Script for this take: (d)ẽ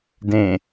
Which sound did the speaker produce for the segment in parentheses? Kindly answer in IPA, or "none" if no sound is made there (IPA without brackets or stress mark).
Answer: d